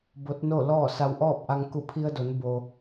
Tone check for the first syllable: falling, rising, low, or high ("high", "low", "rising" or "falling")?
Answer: rising